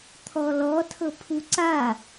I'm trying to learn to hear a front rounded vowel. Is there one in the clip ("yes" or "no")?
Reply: no